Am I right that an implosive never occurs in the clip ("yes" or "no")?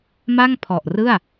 yes